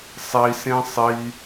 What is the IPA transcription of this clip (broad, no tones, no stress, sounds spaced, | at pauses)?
sˤ i s ẽ sˤ i